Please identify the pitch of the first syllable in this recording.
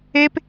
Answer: high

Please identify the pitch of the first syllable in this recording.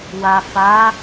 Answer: low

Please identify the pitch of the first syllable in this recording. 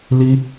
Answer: high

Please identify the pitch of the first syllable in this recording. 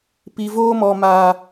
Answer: low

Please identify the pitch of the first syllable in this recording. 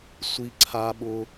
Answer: high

